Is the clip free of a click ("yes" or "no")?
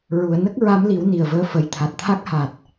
yes